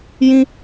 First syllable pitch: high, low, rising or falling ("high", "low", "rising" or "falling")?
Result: high